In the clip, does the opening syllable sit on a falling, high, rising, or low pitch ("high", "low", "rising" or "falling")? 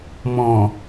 low